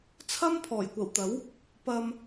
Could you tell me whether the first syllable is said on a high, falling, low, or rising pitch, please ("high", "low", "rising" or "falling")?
high